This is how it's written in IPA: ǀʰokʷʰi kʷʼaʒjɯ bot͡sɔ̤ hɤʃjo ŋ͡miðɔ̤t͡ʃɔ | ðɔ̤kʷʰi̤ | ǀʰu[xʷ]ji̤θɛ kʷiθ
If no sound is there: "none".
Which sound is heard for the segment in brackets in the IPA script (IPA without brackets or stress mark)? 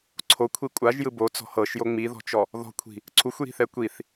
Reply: xʷ